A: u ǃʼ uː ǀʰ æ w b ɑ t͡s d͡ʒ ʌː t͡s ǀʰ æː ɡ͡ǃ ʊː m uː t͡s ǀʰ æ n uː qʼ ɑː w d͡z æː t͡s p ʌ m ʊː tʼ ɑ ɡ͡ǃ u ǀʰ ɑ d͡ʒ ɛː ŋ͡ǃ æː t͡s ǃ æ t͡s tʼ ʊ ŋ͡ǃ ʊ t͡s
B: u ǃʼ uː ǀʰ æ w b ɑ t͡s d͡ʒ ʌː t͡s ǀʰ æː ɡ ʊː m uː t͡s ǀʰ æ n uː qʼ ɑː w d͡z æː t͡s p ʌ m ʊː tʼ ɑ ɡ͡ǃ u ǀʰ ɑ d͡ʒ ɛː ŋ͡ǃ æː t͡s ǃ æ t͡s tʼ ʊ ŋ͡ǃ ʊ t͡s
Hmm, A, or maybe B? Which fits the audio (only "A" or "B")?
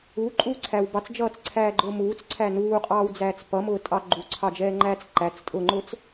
A